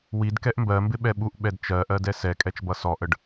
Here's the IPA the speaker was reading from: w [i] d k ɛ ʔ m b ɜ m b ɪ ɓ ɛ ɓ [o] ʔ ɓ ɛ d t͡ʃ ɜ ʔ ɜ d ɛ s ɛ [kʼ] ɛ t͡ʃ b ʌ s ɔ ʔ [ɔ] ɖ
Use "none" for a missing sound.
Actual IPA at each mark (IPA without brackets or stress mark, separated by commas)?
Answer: i, u, kʼ, ə